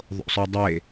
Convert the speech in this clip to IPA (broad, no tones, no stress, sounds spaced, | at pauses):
ðˤ o̰ sˤ ø dˤ e